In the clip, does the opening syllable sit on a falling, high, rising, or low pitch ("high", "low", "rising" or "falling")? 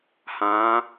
rising